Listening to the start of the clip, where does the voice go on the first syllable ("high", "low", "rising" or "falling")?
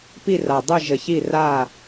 falling